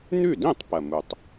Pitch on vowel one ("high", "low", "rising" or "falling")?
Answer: falling